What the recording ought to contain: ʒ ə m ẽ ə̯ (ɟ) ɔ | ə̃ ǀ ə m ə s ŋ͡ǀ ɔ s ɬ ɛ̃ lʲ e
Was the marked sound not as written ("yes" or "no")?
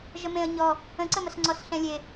yes